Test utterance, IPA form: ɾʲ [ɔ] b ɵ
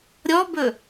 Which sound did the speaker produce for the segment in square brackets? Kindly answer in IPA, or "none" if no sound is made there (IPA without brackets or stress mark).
ɔ